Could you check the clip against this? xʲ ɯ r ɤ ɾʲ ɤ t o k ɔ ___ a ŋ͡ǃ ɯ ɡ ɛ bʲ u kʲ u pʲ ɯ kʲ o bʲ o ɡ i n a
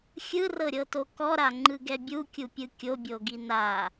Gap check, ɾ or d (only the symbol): ɾ